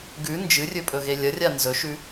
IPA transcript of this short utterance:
ɡ ʉ n d͡ʒ ɨ rʲ ɵ pʼ ɵ ɣ e lʲ ɐ rʲ a n z ɵ ʃ ʉ

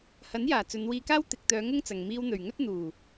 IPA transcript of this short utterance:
h ɐ˨˥ n j aː˨˩ t͡s ɵ˨˧ n w iː˧ k aː˥ w t̪ ɪ˨ k̚ t̪ œː˨˧ ŋ ʊ˥ ŋ t͡s ɐ˨ ŋ m iː˧ w n̪ ɵ˨˩ ɥ ŋ ɵ˥ t̚ n̪ uː˨˩

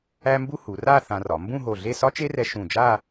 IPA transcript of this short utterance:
æ˥ m b u˥ h u˩˧ r a˥˧ θ ã˧ r ɒ˩˧ m b ũ˥˧ ɦ o˧˩ ɮ e˥˧ s ɒ˥ t͡ʃ e˥ r ɛ˧ ʃ ũ˧˩ d͡ʒ a˥˧

